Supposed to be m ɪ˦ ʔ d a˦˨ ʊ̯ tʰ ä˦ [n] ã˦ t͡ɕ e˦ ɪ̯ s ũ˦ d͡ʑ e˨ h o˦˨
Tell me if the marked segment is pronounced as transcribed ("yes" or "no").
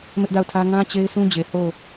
no